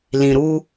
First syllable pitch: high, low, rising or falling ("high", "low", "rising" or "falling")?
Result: low